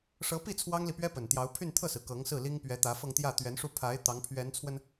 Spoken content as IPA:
ʂ ɤ˧˥ p i˥˩ t͡sʰ w ɑ˥ ŋ l i˨ p ɥ ɛ˥ p ə˨˩ n t̪ j ɑ˧˥ ʊ̯ pʰ y˥˧ n t̪ʰ ɤ˥˩ s ɹ̩˩ k ɤ˧˥ ŋ s ɹ̩˥˩ l i˥ ŋ p ɥ ɛ˧˥ t̪ ä˧˥ f ɤ˥˧ ŋ t̪ j ä˥˩ t̪ ɥ ɛ˧˥ n ʂ u˥˩ pʰ a˧˥ ɪ̯ t̪ ɑ˧˥ ŋ pʰ ɥ ɛ˧˥ n t͡sʰ w ə˧ n

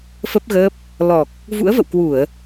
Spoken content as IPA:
f ə˦˥ p̚ ɣ əː˦˥ p̚ | l ɔ˨˩ k̚ | v ṵ˧˥ ə̯ v ə̰˧˨ w k w u˧˩˨ ə̯

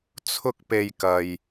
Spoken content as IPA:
t͡sʰ ʊ˧ k̚ p e˨ j k ɐ˨ j

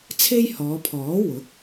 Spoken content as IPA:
t͡sʰ e˥ j h ɔː˨˧ pʰ ɔː˨˥ w ʊ˨˥ k̚

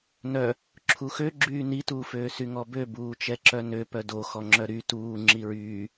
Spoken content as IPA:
n œ | ǁʰ u x ø ɡ͡ǁ yː n i t uː f øː s y ŋ ɔ b ø b uː t͡ʃ ɛ ǁ œ n ø p œ d o x ɔ ŋ͡ǁ œ ɾ y t uː ŋ͡ǁ i ɹ yː

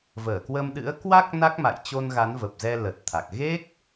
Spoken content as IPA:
v əː˧˩ k w ə˧ m ɗ ɨ̰˧˥ ə̯ k w a˦˥ k̚ n a˦˥ k̚ m a̰˧˨ j t͡ɕ o˧ n ɣ a˨˦ n v ə˨˩ p̚ z ɛ˧ l ə˨˩ t̚ t̪ʰ a˨˩ k̚ ɣ e˦˥ k̚

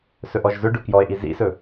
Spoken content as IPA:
s ɵ ʔ ɔ ʒ z ɵ ɖ ɵ k j ɔ e̯ ʔ i z ḭ s ɵ

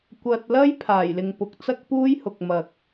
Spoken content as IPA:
kʷ ɐ˨ t̚ l ɐ˥ j pʰ aː˨˩ j l ɪ˨ ŋ p ʊ˨˥ k̚ t͡s ɐ˥ k̚ p uː˥ j h ʊ˨ k̚ m ɐ˨ k̚

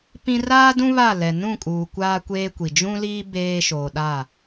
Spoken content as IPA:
p ĩ˦ r aː˦ d ũ˦ β a˦˨ l ɛ˨ n ũ˦˨ kʼ uː˨ kʷ aː˦ kʷ eː˦ kʷ i˨ d͡ʒ ũ˦ l iː˦ b eː˦ ʃ oː˨ ɗ a˦˨

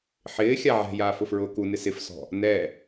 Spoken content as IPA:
ħ ɪː xʲ a ʕ ɛ̤ j aː f ʊ f ɹ ʊː k u n ɪ s ɪ f s ɔ̤ | n ɛ

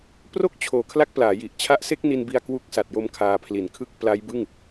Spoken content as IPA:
p r o˥˩ k̚ t͡ɕʰ oː˩˦ kʰ l a˥˩ k̚ p l aː˩˦ j i˨˩ ʔ t͡ɕʰ a˦˥ ʔ s e˥˩ k̚ n i˧ n b i˧ a̯ k w u˦˥ k̚ s a˨˩ t̚ j o˦˥ m kʰ aː˧ pʰ l i˨˩ n kʰ ɯ˥˩ k̚ p l a˦˥ j b ɯ˥˩ ŋ

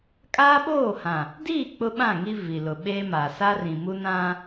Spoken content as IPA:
kʼ aː˦ ɓ oː˦˨ h ã˨ | d iː˦˨ k͡p ʊ˦ ɓ ã˦˨ ŋ i˦ v i˨ l ʊ˨ ɓ eː˦ m aː˨ s a˦ r ĩ˨ m u˦ n ã˦

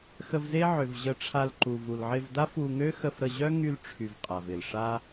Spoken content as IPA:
x ə˧ v z e˦ ʕ ø˨ v ʑ ə˧ ʈ͡ʂʰ a˧ l ǃ u˨ v u˨ l ʕ ɪ˧ v d a˦ f u˧ ŋ ø˦ x ə˧ f ɾ ə˧ ʑ œ˦ ŋ y˧ l ʈ͡ʂʰ y˨ v qʼ a˨ v ɪ˨ l ʂ a˦

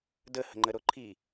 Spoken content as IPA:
d ə h ə̤ ŋ͡ǃ ə ɾ o ǃʰ i

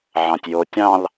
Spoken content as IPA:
ʕ ɑ̃ tʲ j o tʲ ɑ̃ l

